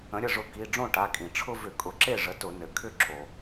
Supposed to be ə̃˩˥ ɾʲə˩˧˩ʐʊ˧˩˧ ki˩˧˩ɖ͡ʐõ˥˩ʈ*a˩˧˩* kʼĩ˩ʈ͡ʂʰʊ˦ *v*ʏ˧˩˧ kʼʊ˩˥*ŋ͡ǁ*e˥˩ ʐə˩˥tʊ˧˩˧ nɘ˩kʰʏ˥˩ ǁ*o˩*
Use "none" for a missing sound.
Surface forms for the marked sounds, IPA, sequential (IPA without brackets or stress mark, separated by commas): a˩˧˩, v, ǁ, o˩